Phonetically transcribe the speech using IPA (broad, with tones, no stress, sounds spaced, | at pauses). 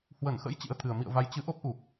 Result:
h w ə˧˩ n x ə̰˧˥ j t͡ɕ ḭ˧˥ ə̯ t̪ʰ ɨ˨˩ ə̯ m ḭ˧˨ ə̯ v a˨˦ j t͡ɕ ɨ˨˦ ʔ o˦˥ p̚ ʔ u˨˩ k̚